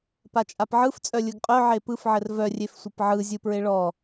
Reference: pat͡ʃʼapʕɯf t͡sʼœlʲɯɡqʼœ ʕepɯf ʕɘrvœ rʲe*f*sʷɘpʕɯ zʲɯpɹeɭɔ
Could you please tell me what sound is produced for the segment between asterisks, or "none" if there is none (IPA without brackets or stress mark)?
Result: f